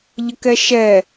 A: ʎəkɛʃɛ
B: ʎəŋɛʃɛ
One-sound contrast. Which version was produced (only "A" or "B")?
A